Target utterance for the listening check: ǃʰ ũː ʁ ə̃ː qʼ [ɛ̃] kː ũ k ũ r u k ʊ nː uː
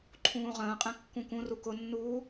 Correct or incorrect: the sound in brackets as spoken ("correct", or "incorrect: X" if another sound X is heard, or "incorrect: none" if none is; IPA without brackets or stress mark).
correct